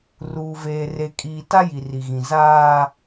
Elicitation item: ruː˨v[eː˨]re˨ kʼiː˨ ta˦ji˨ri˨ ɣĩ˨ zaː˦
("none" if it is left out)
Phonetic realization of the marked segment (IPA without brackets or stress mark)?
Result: eː˨